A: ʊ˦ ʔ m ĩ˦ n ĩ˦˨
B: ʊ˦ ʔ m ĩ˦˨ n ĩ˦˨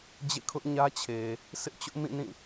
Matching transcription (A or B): B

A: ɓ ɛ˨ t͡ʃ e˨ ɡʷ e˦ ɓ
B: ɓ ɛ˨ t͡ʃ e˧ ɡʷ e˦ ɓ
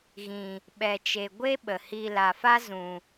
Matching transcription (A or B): A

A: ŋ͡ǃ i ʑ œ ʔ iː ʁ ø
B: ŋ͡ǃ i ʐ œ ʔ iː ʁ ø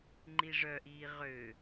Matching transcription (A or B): B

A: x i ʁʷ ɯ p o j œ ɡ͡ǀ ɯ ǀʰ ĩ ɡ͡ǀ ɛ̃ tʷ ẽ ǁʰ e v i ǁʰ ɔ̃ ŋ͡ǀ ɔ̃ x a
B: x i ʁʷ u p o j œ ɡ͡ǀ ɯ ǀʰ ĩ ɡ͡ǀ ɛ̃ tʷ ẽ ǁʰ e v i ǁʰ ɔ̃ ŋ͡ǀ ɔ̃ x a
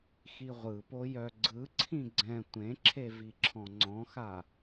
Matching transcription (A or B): A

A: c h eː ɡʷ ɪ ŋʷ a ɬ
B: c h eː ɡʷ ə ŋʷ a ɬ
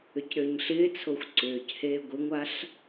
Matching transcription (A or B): A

